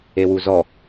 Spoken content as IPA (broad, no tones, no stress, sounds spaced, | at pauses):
e w u z ɔ